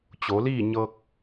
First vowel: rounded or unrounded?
rounded